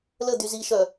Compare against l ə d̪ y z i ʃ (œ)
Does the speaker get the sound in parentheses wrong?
no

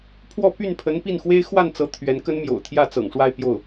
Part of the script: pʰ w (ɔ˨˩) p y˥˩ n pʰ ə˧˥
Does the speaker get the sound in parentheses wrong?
yes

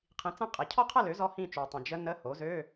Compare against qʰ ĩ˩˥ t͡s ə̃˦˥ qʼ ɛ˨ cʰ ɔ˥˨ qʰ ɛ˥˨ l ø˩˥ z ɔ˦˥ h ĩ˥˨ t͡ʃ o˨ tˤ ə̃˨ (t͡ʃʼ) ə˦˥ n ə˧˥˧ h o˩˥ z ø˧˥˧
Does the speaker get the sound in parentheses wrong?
yes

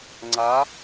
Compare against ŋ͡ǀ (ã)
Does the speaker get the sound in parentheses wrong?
yes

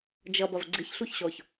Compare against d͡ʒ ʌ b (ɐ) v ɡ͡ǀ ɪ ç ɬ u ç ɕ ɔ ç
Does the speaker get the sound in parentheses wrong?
no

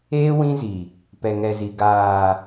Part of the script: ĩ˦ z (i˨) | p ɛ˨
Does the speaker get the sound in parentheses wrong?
no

